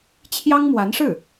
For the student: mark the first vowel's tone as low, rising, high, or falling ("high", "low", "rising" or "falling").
high